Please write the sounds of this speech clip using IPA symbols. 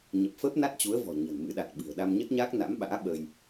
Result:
ɲ ə˨˩ p̚ f əː˦˥ p̚ n a˦˥ t̚ t͡ɕ u˨˦ ə̯ v ɔ̤˨˩ ɲ ə̤˨˩ n m ɨ̰˧˥ ɗ a˨˩ t̚ ɓ ɨ̤˨˩ ə̯ ɗ a˧ m ɲ ə˦˥ t̚ ɲ aː˦˥ k̚ n a̰˧˥ m ɓ a̰ː˧˥ ɓ ə˧ j

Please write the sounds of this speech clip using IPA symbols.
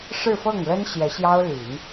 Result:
ʂ ɻ̩˥˧ f ɤ˥˩ ŋ l ə˥ n ɕ j ɛ˧˥ ɕ j ɑ˥ ʊ̯ l y˨˩˦ n

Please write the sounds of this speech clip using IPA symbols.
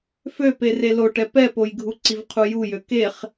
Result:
f ø p e r e l o ʈ ɛ p ɛ p o j ɡʱ u ǀ i v qʰ u j u j ø k e χ

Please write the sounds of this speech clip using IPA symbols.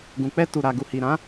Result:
ɡ ũ˨ k͡p ɛ˧ t u˨ ɾ a˨ ɡ u˨ h i˨ ɾ ã˨˦

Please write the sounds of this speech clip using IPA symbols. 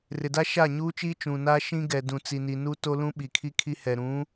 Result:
r ɪ˨ d a˦ ʃ a˦˨ ɲ uː˦ t͡ʃ iː˦ t͡ʃ ũ˨ n aː˦ ʃ ĩ˦ ɡ ɛ˨ d ũ˨ t͡s i˨ n i˨ n u˦ t o˦ l ũ˦ ɓ i˨ kʰ i˦ kʰ i˦ h ɛ˨ ɾ ũ˨˦

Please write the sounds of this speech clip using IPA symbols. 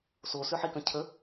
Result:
s o s ø ħ i k ə̃ cʰ ə

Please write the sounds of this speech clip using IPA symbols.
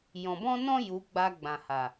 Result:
j ɔ̃˨ b ɔ̃˦ n ɔ̃˦ j u˨˦ ɡ͡b a˧ ɡ͡b ã˨ h a˨

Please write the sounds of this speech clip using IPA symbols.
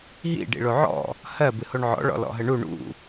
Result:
ɦ ḭ ɖ ḭ ɭ o ʕ ɔ̰ | h ɜ b ɨ h o ɳ ʕ ɔ̰ ɭ ɔ̰ l ɔ̰ ɦ ə ɳ u ɳ ṵ

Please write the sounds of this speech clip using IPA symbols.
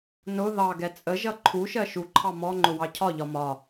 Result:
n ʊ ð ɑ ɡ ɛ t͡sʼ ə ʒ ʌ ǃʰ u ʃ ɜ ʃ u ǃʰ ɑ m ɔ ŋ͡ǃ ʊ w ɑ cʰ ɒ ʎ ɒ m ɒ

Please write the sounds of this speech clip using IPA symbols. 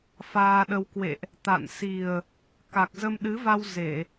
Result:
f aː˧ ɗ ə˧ w k w ḛ˧˨ ʔ | t̪ a̰˧˨ n s i˨˩ ə̯ | k a˨˩ k̚ z ə˧ m ɗ ɨ˨˦ v a˧ w z e˧˩˨

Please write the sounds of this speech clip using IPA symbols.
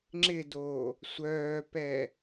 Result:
ŋ͡ǁ ɪ d o | sʷ œː p ɛ

